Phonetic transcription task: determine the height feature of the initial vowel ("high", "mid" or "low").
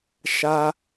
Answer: low